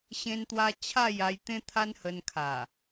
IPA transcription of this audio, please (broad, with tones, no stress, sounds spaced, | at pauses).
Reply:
ɕ ẽ˧ n t̪ w a˧ t͡ɕʰ a˥˧ j a˧ j t̪ ẽ˦ t̪ʰ a˦ n h ə˧ n kʰ a˨˩